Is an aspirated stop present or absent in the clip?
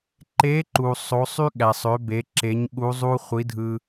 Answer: absent